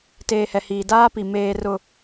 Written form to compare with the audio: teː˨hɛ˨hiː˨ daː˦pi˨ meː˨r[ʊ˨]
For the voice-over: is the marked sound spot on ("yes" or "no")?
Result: yes